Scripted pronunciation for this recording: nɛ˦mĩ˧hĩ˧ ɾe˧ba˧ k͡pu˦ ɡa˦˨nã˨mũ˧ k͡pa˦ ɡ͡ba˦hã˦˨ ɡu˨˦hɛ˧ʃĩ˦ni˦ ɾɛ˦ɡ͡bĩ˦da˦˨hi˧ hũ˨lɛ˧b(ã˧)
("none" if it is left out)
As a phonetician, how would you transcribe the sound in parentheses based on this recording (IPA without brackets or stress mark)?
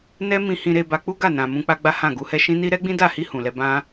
ã˦